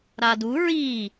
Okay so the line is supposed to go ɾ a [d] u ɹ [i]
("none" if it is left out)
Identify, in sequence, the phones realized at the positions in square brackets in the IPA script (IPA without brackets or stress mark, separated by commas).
d, i